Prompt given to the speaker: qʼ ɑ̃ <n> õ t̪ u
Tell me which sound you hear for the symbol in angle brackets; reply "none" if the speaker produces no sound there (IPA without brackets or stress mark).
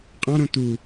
ɾ